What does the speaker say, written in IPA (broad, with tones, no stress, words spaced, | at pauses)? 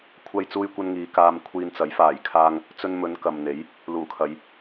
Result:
kʷʰɐ˥jt͡suː˥jkʷɐ˥nŋiː˨˧ kaː˧mkʷʰiː˧nt͡sɐ˨˥j faː˨˩jkʰaː˧ŋ | t͡sɵ˧nmɵ˨˧n kɐ˨mn̪e˨˥j | luː˨˩kʰɐ˨˧j